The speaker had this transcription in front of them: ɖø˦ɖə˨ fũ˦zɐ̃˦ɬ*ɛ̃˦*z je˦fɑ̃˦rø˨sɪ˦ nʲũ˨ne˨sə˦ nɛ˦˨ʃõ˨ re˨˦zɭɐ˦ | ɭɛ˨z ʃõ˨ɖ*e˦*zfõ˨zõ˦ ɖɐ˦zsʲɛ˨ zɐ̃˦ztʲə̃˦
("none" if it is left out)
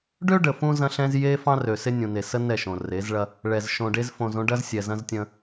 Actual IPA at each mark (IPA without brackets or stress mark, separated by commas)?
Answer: ɛ̃˦, e˦